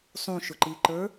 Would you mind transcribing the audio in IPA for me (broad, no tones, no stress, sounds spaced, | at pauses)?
sˤ ũ ʃ ʊ ǃ i ǃ ə˞